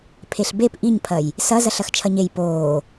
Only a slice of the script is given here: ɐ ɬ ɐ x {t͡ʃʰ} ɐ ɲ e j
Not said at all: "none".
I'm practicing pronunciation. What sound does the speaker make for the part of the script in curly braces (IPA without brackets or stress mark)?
t͡ʃʰ